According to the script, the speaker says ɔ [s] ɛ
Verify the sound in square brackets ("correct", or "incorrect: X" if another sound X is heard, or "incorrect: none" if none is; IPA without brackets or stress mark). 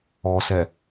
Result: correct